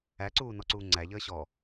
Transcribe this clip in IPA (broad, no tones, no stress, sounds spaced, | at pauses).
æ ǀ uː n ɔ ǀ uː ŋ͡ǀ æ ʎ əː ɕ ɔ